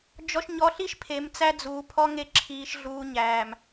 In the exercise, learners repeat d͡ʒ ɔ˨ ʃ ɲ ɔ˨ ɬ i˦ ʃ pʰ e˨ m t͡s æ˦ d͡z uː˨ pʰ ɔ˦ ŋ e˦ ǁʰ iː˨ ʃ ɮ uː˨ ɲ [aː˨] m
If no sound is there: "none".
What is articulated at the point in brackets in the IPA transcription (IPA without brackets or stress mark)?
æː˨